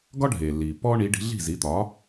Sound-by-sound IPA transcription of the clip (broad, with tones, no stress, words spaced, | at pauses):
ɡɒ˥ɖʱeː˩lːiː˩ pːɔː˥ɳiː˩˥ ɖi̤˩˥ ɮi̤˥˩zi˩˥ t̪ɒː˩˥